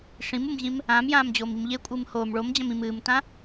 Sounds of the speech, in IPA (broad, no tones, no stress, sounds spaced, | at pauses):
ʂ ĩ m u m ʑ ĩ m | ãː m j ãː m d͡ʑ oː m i m ʎ e kʷʼ ɨː m h oː m ɭ o m d͡ʑ ɐ̃ m ĩ m ɨː m t ã